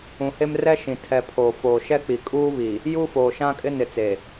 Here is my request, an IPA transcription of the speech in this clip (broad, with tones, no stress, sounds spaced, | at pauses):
ũ˨ h e˦ m r ɛ˦ ʃ ĩ˨ tʰ ɛ˨ pʰ oː˨ f oː˨ ʃ ɛ˦ k͡p i˨ kʼ uː˦ β i˨ | j uː˦ f oː˨ ʃ ã˦ kʼ ɪ˦ n ɪ˨ t͡s e˨